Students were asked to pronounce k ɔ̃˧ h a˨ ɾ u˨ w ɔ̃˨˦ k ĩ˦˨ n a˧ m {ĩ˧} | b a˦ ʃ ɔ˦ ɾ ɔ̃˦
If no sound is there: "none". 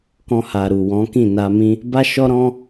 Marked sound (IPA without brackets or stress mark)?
ĩ˦